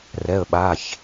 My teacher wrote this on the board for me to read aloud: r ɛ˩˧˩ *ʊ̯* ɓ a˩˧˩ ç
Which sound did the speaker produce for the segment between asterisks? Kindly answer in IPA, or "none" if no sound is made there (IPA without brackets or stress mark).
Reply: ə̯